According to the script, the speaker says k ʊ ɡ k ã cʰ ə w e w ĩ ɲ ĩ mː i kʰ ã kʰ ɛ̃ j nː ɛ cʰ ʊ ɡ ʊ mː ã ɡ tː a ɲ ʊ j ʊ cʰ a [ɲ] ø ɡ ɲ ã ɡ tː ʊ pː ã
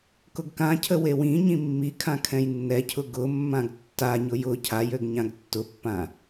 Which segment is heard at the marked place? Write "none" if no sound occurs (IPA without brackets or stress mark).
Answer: j